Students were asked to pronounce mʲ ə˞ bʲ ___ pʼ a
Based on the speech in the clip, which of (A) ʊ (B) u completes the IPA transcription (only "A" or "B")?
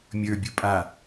A